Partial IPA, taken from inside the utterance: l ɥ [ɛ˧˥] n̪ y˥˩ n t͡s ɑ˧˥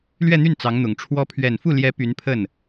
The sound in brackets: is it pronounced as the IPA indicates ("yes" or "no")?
no